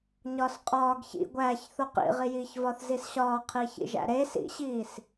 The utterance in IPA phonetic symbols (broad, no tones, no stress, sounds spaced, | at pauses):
ɲ ɒː s qʼ ɒː ɡ ç ḭ ɡʷ æː ç θ o q ḭ ʁ i j iː ç v ɒ θ z i s ɕ ɒː qʰ iː ç ḭ ʒ æ̰ ɾ eː s ḭ ɕ iː s